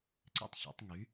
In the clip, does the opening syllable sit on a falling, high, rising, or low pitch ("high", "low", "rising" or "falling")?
high